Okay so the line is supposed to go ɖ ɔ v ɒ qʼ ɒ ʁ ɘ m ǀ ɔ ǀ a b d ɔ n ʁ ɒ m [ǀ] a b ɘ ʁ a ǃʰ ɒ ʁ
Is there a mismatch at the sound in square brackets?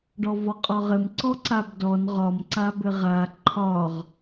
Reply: no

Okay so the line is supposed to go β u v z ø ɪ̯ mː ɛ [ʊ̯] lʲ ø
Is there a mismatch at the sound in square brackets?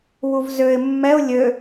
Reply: no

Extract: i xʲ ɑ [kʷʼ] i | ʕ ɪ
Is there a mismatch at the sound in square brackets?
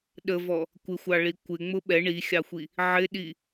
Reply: yes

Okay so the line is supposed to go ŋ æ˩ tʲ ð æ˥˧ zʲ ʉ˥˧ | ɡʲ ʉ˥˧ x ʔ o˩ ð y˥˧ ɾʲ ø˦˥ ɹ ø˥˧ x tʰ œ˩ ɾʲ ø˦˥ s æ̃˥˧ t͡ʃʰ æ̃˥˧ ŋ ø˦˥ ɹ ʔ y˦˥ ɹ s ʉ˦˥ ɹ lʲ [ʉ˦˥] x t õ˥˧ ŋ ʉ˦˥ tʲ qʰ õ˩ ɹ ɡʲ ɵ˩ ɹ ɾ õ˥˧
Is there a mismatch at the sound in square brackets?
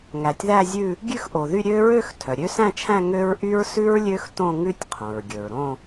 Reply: yes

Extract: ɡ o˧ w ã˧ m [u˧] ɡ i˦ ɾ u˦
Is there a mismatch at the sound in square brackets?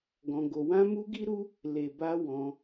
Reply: no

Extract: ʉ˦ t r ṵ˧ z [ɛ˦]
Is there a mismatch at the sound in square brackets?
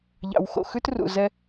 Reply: no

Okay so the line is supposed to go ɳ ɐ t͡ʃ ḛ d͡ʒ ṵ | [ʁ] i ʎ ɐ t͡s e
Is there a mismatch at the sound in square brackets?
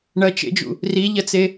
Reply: yes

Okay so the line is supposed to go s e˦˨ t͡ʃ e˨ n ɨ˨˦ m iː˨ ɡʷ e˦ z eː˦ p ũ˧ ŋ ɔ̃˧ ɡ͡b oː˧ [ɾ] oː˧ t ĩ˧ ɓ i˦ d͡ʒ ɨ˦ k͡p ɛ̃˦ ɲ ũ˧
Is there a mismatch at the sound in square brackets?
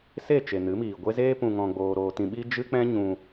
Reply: no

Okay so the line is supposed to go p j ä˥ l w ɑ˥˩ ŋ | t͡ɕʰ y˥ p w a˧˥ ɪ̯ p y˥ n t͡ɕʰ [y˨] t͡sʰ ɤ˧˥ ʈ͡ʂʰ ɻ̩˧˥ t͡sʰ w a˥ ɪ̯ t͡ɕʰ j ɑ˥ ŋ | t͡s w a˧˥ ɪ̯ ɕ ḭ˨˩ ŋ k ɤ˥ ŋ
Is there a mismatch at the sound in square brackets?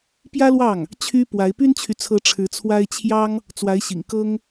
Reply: no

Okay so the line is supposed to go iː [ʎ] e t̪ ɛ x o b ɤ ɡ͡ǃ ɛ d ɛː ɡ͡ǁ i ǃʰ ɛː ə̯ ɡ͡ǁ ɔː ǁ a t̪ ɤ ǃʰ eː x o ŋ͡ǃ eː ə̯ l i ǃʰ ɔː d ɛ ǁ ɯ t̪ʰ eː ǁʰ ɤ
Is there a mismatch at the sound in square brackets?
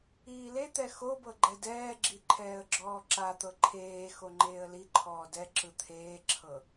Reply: yes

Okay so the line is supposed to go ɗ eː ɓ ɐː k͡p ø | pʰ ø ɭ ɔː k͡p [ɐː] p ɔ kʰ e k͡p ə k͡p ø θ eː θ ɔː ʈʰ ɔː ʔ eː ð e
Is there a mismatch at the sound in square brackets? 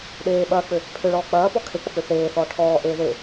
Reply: no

